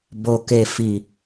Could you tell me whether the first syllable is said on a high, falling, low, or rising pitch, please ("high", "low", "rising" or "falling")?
low